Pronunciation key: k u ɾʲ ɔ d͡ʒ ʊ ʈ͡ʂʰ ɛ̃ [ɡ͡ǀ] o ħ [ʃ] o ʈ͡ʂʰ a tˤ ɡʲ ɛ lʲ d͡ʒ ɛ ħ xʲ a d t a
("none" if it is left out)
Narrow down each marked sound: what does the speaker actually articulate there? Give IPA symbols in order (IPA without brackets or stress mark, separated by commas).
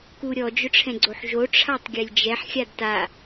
ɡ͡ǀ, ʒ